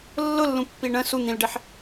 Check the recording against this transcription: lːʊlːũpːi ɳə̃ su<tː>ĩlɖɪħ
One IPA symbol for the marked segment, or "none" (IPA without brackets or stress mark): n̪